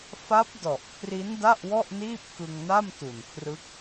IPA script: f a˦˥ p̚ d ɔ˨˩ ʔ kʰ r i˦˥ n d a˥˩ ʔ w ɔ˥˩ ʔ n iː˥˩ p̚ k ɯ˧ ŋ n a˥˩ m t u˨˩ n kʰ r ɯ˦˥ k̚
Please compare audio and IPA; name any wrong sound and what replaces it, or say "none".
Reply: none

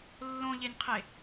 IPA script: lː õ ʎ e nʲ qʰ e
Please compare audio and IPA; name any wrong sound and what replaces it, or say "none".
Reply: none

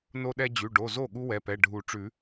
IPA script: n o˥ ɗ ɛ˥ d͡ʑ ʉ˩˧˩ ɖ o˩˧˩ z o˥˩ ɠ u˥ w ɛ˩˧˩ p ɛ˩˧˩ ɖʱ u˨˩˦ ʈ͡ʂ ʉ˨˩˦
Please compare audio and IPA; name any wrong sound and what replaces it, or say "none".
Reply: none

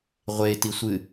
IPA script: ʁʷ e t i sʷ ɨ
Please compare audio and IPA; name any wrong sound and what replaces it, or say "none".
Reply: none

